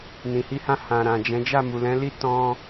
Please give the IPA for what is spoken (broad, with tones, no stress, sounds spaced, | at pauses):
n ĩ˨ h i˧ h ã˧ h ã˨ ɾ ã˨ d͡ʒ ɛ̃˨˦ d͡ʒ a˦˨ m u˨ l ɛ̃˨˦ l i˦ t ɔ̃˧